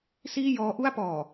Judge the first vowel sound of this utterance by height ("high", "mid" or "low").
high